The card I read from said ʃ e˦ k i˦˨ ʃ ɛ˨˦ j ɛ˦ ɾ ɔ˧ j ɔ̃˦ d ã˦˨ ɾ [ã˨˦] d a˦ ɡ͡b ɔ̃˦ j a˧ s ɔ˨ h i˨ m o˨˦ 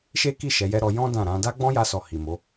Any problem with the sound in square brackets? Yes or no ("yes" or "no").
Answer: no